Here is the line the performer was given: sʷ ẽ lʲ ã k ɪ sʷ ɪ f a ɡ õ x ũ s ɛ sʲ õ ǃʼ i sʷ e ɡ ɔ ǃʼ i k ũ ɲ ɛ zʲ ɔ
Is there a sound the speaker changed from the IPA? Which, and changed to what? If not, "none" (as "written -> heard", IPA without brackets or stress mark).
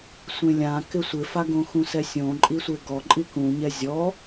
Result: none